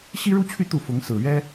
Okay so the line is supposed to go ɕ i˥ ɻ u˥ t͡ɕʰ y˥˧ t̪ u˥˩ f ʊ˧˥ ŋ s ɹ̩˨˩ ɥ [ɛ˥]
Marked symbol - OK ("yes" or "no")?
yes